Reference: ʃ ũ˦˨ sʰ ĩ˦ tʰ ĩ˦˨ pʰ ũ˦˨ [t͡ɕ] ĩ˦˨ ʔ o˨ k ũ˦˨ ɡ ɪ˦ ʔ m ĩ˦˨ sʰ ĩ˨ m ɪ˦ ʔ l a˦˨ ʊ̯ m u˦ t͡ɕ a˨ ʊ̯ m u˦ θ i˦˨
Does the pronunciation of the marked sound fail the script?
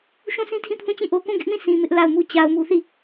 no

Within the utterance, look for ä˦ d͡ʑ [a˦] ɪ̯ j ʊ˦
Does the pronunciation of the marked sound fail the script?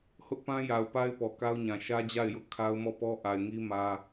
yes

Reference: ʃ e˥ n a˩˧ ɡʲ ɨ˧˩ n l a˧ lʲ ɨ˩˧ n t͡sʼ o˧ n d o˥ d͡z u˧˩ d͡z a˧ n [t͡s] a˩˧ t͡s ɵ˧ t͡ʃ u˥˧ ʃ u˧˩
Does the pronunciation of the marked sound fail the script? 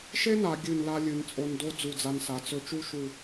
yes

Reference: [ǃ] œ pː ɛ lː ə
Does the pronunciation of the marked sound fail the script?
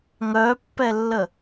yes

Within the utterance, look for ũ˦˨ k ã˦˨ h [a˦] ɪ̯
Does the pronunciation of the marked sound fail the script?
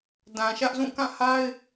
no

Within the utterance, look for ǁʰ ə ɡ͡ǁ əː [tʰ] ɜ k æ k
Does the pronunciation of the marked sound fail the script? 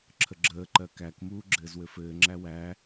yes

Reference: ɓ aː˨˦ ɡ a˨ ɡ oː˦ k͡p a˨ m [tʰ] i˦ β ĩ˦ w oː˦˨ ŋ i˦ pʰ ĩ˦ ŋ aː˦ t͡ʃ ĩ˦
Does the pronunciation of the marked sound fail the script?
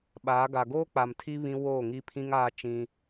no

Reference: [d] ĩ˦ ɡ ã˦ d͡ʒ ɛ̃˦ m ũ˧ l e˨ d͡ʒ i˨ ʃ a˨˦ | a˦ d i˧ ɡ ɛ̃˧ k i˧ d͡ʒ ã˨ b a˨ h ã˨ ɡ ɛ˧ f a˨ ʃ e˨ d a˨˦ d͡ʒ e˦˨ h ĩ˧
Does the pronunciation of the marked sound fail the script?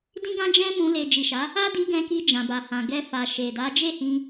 no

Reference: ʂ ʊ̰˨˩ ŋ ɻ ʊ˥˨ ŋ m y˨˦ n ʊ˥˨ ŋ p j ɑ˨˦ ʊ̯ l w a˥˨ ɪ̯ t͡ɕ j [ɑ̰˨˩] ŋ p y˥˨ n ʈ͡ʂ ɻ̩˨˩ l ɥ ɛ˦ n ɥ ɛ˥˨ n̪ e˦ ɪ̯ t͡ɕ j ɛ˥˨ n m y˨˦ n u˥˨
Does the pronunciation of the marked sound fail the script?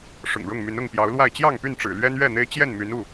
yes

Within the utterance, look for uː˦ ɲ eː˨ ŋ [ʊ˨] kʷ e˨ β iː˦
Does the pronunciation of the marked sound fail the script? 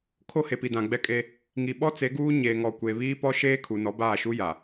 yes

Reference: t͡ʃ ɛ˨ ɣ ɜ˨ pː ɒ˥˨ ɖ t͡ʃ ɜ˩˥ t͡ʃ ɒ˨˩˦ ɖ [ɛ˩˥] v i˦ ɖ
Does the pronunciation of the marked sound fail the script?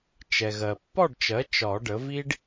yes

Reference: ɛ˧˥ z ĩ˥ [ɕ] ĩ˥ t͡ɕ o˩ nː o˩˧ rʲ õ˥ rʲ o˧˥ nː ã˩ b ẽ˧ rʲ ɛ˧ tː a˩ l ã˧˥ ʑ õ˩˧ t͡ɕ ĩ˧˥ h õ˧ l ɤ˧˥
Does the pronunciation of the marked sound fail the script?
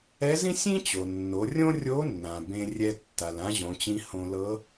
yes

